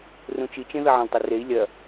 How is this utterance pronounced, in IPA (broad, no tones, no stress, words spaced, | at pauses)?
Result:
rũt͡ʃit͡ʃẽ ðɐʕɐ̃ltˤɐrei̯ lʲɐ